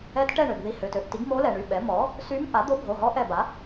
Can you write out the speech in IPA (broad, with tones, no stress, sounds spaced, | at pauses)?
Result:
ɛ˧˥ t ʈ ɛ˥˨ ɳ ø˩ ɡ ð i˧˩ h ø˩˧˩ t ø˧˩ ʔ t i˩˥ ɡ m o˧˥ l ɛ˩ ɳ y˩˧˩ ɓ ɛ˩˥ m ɔ˩˥ | s y˧˥ m ʔ a˩˥ d̪ o˧˥ bʱ o˩˧˩ ɦ ɔ˧˥ ʔ ɛ˧˩ b a˩˥